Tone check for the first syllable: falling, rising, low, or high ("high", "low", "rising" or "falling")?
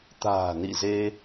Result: low